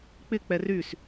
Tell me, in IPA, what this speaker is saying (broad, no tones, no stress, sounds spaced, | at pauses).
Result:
k͡p ɪ k͡p ɛ r y s